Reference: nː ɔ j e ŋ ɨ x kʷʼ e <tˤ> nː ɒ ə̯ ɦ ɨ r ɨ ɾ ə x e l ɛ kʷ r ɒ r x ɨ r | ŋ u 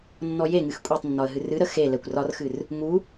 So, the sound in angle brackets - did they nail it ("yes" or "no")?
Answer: yes